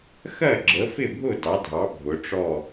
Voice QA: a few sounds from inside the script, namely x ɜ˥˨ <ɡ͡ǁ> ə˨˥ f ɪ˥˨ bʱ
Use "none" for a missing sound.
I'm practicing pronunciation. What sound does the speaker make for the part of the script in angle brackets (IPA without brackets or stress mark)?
ɡ͡ǁ